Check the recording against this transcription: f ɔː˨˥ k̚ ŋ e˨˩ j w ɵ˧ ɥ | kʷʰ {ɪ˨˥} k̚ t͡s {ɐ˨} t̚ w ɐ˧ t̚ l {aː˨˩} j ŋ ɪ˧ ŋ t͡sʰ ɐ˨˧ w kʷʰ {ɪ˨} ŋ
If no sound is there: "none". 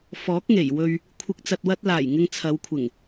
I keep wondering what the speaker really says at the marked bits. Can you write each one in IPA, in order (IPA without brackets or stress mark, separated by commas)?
ɪ˨, ɐ˨, aː˨˩, ɪ˨˩